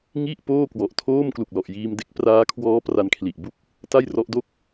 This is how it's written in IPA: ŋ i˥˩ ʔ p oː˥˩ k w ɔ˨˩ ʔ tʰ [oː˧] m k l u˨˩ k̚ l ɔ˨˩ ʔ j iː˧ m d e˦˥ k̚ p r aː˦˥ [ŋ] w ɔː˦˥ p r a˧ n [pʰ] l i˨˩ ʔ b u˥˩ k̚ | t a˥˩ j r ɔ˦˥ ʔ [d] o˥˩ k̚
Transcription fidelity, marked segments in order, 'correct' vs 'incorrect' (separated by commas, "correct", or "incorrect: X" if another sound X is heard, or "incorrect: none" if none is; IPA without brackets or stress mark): incorrect: oː˥˩, incorrect: kʰ, incorrect: kʰ, correct